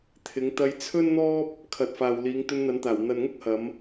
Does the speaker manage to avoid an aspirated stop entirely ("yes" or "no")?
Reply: no